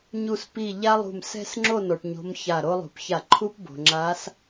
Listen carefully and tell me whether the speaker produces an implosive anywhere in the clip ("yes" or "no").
no